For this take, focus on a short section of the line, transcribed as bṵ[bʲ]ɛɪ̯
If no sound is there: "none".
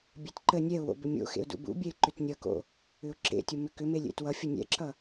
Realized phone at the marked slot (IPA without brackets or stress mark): bʲ